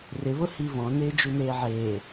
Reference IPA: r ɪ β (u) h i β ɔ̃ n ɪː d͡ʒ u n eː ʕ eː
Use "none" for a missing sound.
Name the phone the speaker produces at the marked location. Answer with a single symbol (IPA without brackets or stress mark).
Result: ʊ